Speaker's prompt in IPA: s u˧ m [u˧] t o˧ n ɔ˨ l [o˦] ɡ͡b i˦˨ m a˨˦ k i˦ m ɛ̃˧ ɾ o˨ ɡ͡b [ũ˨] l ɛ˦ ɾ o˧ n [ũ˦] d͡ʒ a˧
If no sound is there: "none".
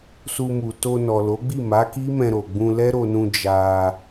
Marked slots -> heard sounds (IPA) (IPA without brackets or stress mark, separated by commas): u˨, o˨˦, ũ˧, ũ˧